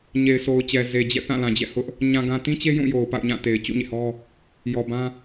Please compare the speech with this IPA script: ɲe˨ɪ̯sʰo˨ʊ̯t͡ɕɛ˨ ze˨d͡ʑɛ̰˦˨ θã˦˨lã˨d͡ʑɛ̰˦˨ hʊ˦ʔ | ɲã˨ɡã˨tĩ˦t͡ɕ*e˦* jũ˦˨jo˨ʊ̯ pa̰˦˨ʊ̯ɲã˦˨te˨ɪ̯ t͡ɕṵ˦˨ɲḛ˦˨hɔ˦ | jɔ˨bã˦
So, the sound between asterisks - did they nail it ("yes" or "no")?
yes